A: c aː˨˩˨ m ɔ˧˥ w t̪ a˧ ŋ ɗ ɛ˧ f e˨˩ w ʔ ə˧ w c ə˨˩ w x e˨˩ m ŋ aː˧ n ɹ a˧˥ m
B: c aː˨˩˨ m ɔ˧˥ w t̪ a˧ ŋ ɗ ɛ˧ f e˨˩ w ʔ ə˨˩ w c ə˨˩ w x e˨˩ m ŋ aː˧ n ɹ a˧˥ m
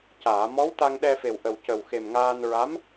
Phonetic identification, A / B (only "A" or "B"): B